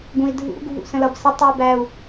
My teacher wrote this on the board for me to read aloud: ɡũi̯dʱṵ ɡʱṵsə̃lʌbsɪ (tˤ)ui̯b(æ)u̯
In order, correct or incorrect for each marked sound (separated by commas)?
correct, correct